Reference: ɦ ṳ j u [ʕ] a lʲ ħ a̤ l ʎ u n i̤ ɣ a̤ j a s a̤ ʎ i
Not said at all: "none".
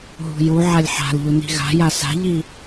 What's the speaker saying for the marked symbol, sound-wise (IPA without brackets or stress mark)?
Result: ʕ